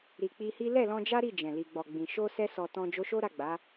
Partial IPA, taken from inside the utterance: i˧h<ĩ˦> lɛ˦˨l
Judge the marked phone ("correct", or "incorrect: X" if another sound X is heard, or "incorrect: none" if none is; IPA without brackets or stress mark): incorrect: i˦